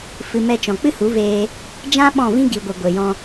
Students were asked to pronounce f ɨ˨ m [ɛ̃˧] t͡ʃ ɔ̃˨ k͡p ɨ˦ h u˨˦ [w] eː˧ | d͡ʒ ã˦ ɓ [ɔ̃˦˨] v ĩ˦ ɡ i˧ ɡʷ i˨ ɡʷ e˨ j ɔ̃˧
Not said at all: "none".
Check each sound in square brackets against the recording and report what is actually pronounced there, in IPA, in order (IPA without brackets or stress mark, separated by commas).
ɛ˧, v, ɔ̃˦˨